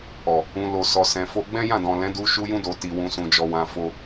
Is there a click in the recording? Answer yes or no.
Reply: no